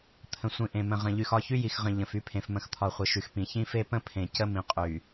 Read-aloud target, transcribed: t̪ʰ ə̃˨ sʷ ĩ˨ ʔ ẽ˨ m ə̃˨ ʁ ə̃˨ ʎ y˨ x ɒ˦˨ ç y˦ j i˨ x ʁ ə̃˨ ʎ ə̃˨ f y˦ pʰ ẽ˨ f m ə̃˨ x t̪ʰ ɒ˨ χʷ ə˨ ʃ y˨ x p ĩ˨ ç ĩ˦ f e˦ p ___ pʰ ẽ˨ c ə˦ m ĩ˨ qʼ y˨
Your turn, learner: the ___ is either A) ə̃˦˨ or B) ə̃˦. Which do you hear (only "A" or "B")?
B